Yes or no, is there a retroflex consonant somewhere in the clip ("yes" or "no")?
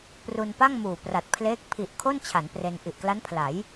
no